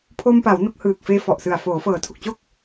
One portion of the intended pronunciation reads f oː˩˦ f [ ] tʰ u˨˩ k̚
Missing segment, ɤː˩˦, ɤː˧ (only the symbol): ɤː˩˦